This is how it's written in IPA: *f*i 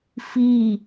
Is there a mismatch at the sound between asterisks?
no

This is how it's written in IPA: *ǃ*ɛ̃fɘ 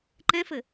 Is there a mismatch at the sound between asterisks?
no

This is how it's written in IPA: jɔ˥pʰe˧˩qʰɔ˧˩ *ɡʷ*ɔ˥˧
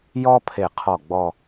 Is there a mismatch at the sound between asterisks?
yes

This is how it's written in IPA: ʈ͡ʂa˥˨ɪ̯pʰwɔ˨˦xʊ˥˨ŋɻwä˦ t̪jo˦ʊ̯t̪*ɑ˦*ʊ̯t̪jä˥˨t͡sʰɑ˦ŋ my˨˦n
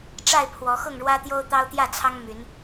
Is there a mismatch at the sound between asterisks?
no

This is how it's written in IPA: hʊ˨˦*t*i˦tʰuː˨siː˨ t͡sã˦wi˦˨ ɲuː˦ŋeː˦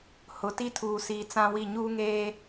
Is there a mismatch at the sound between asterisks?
no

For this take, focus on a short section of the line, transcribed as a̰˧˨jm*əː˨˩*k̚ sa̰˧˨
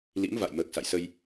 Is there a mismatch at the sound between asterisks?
no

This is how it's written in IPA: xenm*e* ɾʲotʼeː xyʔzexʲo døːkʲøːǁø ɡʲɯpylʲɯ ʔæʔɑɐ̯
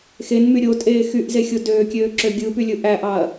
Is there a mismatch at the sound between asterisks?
yes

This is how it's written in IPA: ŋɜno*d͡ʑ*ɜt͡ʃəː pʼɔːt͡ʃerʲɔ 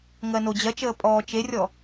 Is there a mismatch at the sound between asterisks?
no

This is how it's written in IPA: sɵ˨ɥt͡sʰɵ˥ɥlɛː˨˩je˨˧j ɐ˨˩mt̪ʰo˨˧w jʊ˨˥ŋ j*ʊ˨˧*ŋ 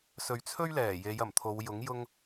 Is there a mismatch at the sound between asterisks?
yes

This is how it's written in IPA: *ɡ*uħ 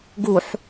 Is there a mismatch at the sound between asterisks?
no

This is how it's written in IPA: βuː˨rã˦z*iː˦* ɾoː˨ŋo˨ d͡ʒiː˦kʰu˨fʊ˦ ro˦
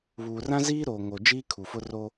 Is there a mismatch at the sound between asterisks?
no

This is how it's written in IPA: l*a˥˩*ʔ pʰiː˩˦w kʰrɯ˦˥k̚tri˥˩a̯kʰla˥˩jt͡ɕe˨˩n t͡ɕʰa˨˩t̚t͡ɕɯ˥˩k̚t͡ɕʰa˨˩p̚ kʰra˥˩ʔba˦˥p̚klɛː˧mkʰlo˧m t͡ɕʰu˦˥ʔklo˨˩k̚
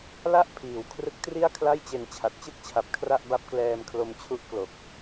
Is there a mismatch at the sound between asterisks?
yes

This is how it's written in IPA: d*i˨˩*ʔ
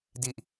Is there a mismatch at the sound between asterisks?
no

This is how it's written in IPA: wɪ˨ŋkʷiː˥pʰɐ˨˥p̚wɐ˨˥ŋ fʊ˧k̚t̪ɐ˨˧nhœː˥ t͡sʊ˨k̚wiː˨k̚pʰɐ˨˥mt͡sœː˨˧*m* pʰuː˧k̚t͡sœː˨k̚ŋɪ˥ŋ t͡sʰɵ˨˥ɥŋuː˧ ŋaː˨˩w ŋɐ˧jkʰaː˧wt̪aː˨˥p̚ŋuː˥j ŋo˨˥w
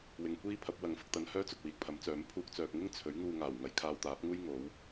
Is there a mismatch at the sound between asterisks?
no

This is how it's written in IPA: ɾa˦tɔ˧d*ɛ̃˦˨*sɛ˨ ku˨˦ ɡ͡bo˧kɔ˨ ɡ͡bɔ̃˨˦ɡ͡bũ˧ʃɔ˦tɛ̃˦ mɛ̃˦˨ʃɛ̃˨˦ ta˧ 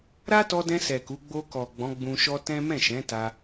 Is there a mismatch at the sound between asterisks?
yes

